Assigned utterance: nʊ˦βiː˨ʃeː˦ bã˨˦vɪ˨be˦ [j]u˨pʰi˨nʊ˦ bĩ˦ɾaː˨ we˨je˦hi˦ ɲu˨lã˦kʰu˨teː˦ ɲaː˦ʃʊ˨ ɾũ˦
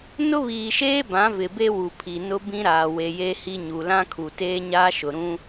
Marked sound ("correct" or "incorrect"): incorrect